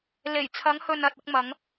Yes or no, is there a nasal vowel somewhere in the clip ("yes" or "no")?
no